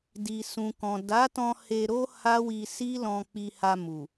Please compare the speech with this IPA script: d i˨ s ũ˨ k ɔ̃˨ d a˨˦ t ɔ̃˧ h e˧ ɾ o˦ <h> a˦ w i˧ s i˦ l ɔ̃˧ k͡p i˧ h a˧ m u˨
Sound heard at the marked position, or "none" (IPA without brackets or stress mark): h